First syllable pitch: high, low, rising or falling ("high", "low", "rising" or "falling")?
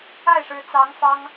falling